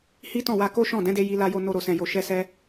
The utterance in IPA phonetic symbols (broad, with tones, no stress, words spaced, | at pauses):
hi˦tɔ̃˦˨wa˧ ko˦ʃɔ̃˦˨ dɛ̃˨˦de˧ ji˧la˧jo˧ no˧ɾo˨ sɛ̃˨jo˨ ʃɛ˧sɛ˧